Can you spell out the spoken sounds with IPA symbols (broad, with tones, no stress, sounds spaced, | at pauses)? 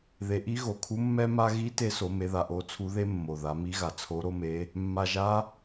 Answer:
ð e˩˧ ʔ i˧˥ ɣ o˩ kʰ u˧˥ mː ɛ˧ m a˧ ɣ i˧˥ t e˧˥ s o˩˧ m e˩˧ ð a˩ ʔ o˧˥ t͡sʰ u˧˥ ð e˥ mː o˩ ð a˩˧ m i˧˥ ɣ a˩ t͡sʰ o˧˥ ɾ o˥ m e˧˥ | mː a˩ ʒ a˧˥